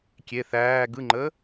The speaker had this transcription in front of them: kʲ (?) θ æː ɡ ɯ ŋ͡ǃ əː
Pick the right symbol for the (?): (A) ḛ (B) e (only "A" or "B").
B